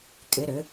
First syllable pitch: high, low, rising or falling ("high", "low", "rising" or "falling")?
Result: rising